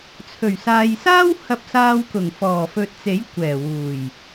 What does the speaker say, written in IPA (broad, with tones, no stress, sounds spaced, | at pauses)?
t͡sʰ ɵ˨˩ ɥ s aː˨ j s aː˥ w h ɐ˧ p̚ s aː˧ w k ʊ˨˩ ŋ f ɔː˨˩ f ɵ˨ t̚ t͡s e˨˥ j kʷ ɛː˨˩ w uː˨˩ j